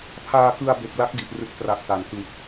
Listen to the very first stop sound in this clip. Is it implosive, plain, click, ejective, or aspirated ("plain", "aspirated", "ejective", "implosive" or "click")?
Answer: aspirated